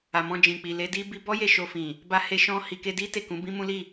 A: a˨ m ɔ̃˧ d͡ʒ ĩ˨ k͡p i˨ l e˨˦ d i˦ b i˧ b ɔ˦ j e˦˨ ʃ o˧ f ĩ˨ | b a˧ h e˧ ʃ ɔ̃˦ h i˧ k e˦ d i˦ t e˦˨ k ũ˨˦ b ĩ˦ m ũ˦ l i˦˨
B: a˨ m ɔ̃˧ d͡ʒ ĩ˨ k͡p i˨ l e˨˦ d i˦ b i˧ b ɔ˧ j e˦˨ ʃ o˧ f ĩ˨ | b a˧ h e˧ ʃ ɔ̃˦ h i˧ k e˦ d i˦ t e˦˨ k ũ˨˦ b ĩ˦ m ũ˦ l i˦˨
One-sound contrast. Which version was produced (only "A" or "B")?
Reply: A